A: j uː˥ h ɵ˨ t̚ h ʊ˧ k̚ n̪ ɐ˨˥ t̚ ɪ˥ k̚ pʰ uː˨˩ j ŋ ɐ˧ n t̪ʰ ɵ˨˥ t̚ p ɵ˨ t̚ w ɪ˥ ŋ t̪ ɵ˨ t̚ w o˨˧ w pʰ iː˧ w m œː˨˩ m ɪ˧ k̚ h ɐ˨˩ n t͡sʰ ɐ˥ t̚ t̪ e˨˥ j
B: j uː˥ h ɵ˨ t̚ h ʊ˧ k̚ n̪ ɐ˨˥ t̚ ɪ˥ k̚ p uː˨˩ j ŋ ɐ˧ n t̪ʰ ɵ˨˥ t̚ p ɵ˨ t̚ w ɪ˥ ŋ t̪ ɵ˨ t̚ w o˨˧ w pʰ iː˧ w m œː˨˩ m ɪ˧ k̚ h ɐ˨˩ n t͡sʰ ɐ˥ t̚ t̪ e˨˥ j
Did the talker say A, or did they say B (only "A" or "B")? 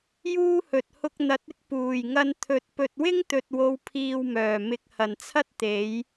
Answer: B